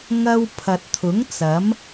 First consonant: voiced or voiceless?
voiced